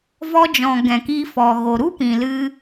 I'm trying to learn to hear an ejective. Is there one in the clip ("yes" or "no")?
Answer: no